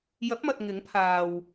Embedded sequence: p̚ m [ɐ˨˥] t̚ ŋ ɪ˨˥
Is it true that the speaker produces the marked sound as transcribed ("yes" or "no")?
no